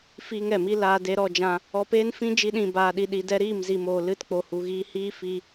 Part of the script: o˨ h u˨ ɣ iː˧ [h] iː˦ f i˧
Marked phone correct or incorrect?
correct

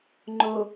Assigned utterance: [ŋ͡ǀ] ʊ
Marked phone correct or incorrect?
incorrect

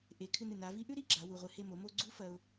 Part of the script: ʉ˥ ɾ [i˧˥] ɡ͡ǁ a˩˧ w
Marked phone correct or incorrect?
incorrect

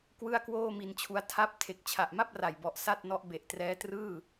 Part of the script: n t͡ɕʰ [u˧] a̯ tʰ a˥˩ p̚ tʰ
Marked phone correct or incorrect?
incorrect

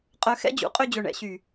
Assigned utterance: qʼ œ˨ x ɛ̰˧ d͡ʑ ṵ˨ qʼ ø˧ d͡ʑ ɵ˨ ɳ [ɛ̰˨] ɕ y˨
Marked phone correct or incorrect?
correct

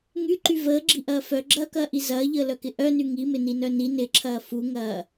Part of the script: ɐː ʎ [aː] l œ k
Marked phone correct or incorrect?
incorrect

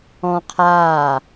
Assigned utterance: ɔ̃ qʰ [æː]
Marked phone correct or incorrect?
incorrect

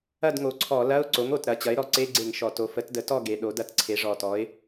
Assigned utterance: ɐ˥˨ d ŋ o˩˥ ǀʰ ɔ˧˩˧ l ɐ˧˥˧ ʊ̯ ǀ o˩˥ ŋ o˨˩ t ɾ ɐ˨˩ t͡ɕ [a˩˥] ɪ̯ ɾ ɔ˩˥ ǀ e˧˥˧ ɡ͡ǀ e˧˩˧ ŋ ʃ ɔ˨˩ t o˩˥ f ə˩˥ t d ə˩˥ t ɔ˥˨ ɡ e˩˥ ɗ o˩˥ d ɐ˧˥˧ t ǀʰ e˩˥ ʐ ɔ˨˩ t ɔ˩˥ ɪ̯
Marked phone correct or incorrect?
incorrect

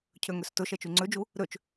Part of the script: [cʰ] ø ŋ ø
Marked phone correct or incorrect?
correct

